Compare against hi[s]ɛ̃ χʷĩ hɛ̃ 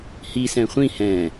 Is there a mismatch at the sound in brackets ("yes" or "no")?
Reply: no